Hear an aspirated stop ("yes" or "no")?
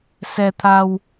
yes